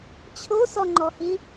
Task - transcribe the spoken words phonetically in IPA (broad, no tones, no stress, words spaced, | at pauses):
t͡ɕʰosɔŋ͡ǃɔhi